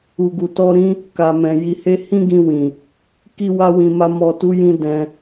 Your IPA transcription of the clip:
u˨ɡu˨ tɔ˧ɾĩ˦ | ka˨mɛ̃˨ ji˨he˧ hĩ˦ɡĩ˧ wĩ˨ | ki˧wa˧wĩ˨ma˧ mɔ˨tu˨˦jĩ˧ dɛ̃˧

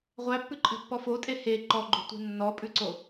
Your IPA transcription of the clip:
ʁʷæpːʉǃʼɛ̤pːɔ fotʼe he ǃɔɡ͡ǃo̤tʷɛ̤ nːɔpʼʉǀo

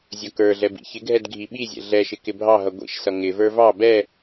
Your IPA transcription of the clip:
zʲʌkə˞ɮɛ bḭçɪɡʱɛd ɡʱiɓizʲɛ̰ ɮɛʃɪ kɪbʱɑɦʌ ɡʷḭʃsʌ ŋɪvə˞ vɑ bɛ

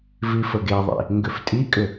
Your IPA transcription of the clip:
vifəɡeðˤḭ | ŋɡʏftʼikʼʏ

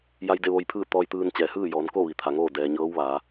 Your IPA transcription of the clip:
ja˧jde˥˨ ʋo˧jpʰɯː˥˨ t̪ɔː˧jt̪ɯː˧n t͡ɕɛː˩hɯː˥˨jɔː˩˧nko˥˨ ʋi˩t̪ʰa˩ŋoː˥˨ dɛː˩ ɲɤː˧˥wʋaː˩˧

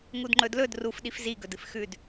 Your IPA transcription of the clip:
ŋudŋ͡ǃɵdlɵd rufɗif ziɡɵdɨf xʉd

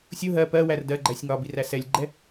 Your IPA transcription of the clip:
sʲʊ ɦɜ pɜwær dɜɡ͡ǃæsʲ ŋɒbiræ sɛlʲɡ͡ǃɛ

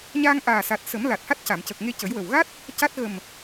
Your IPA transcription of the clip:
ɲaː˧ŋʔaː˨˩sa˨˩t̚ sə˨˩˦mla˨˩t̚ha˦˥t̚ ca˨˩˨mcə˨˩k̚ŋe˧ cə˨˩˦jwə˨˩w ɣa˦˥t̚ | ca˦˥t̚ ɣə˨˩m

